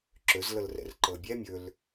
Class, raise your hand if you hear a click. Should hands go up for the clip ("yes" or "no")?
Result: yes